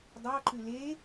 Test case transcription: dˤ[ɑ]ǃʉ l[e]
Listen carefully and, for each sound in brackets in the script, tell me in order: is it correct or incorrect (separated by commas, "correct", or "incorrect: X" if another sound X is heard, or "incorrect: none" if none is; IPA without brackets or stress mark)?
correct, correct